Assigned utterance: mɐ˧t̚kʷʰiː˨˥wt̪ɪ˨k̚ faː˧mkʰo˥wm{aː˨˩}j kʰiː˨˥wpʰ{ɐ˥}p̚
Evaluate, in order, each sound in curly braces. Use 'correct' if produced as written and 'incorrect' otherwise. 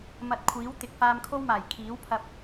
correct, incorrect: ɐ˧

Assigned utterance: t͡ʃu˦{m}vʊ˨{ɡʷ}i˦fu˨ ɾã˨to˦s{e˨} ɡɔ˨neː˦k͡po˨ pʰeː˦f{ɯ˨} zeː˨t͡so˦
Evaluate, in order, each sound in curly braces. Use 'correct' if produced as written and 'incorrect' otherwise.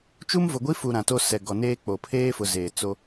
correct, correct, incorrect: ɛ˨, incorrect: ʊ˨

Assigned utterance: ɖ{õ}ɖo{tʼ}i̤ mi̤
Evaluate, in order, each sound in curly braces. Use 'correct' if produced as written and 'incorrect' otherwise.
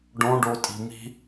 correct, correct

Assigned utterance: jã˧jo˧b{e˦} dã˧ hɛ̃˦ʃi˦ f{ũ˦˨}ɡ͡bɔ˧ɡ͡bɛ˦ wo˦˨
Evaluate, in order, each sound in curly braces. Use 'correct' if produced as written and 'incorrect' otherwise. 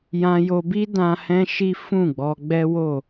incorrect: i˦, correct

